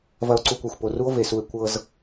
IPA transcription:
v ɐ˧ o̯ ǀ u˧ kʷ e˨ xʷ p o˨ r u˦ o̯ v e˨ s u˧ e̯ kʷ ɤ˧ z

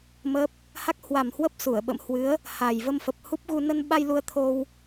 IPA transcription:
m əː˦˥ p̚ | h a˦˥ k̚ h w a˨˩ m h w ə˦˥ p̚ s u˧˩ ə̯ ɓ ə̰˧˨ m h w ɨ˨˦ ə̯ | h a˨˩ j v ə˧ m f ə˨˩ p̚ h u˦˥ p̚ ɣ u˧ n ə˧ n ɓ a˧ j l u˧ ə̯ t̪ʰ o˧ w

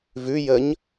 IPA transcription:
v ʉ j əː ɲ

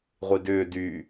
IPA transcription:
ʁʷ i d ʏː d yː

